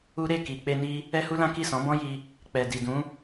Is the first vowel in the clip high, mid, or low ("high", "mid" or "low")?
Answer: high